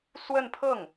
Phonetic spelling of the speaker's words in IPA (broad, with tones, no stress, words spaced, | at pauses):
swə˥˧npʰɤ˥˩ŋ